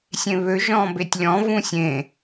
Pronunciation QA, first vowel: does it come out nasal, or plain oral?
nasal